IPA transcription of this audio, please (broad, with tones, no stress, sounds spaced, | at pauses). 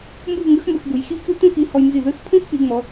m b u˥˧ v ŋ ɡ ə˥ x m b ə˧ x ɡ u˩˧ j x i˥ v p u˥ t ũ˥˧ x i˧ h ɔ˧ j n z i˧˩ ð ɘ˥˧ x pʰ ũ˥ x k͡p i˩˧ ŋ͡m ɔ˩˧